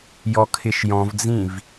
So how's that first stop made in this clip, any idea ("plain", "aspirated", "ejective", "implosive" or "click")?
aspirated